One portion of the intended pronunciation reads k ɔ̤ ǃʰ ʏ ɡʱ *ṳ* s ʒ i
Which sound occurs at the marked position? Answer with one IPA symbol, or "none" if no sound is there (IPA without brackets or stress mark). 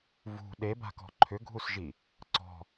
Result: u